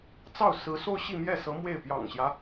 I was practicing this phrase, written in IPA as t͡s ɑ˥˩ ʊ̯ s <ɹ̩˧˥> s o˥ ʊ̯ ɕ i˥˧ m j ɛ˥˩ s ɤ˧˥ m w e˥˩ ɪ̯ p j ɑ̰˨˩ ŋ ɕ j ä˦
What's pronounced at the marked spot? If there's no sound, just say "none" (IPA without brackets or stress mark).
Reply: ɹ̩˧˥